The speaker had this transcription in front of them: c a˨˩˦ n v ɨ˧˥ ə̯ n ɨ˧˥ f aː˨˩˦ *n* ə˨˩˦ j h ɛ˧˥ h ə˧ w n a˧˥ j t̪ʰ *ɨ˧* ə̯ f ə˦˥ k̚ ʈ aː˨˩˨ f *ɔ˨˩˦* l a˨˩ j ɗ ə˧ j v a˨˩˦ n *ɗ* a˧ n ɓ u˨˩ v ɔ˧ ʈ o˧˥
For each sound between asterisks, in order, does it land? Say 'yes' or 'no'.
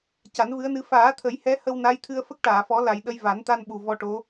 no, yes, yes, no

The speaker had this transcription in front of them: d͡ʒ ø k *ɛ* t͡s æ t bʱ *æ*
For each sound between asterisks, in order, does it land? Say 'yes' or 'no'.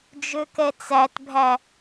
yes, yes

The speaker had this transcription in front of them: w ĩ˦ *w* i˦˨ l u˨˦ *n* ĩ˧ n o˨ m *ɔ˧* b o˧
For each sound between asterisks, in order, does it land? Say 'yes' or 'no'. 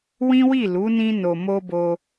yes, yes, no

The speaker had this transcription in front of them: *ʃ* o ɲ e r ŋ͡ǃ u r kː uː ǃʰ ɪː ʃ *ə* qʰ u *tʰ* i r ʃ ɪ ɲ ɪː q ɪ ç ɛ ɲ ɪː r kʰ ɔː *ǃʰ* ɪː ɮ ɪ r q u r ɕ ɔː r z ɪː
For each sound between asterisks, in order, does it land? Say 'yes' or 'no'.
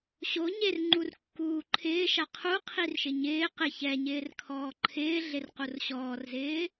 no, no, no, yes

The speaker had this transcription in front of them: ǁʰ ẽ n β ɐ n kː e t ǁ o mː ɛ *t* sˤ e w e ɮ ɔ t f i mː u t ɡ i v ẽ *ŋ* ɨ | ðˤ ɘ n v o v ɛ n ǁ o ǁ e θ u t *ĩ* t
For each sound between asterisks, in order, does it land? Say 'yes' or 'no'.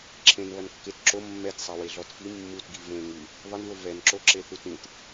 yes, yes, yes

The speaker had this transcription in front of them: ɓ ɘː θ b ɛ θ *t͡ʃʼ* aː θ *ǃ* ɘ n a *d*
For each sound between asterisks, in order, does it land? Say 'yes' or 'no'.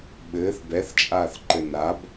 yes, yes, no

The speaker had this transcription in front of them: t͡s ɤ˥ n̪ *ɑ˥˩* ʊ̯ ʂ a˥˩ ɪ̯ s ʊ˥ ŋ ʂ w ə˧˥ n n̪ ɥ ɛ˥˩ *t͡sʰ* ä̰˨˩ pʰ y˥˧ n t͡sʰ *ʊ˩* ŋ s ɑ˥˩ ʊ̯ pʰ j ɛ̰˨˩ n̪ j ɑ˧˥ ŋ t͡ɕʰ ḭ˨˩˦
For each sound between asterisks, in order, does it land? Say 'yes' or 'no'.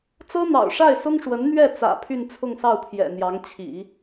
no, no, no

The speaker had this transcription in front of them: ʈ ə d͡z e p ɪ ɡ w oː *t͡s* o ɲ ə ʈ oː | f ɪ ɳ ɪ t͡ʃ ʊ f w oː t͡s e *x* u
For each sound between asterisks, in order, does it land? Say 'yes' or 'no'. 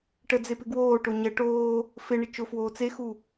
no, yes

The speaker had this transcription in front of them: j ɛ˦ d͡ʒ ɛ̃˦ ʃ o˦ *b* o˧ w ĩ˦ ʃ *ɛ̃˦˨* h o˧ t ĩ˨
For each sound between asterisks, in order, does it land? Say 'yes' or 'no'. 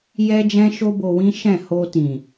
yes, yes

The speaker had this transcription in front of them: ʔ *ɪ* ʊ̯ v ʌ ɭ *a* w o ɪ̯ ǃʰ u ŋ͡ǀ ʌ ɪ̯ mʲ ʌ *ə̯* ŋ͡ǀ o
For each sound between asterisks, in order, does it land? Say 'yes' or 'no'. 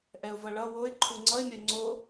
no, no, no

